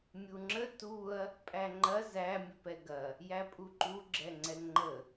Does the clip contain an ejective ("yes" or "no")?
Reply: yes